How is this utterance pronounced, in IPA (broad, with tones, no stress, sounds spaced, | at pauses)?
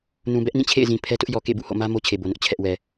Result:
n ũ˨ b ɛ˦ ʔ n ĩ˦˨ t͡ɕʰ ḛ˦˨ ɪ̯ z ĩ˨ pʰ ɛ˦ t ʊ˦ ʔ j ɔ˨ k ḛ˦˨ b ṵ˦˨ h o̰˦˨ m ä˦ m o˦ t͡ɕʰ e˨ b o˨ n ʊ˦ ʔ t͡ɕʰ ɛ˦ ʔ w ɛ˨